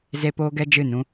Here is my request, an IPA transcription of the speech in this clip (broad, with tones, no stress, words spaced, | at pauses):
ze˦poː˦ ɡɛ˦d͡ʒɨ˦˨nũ˦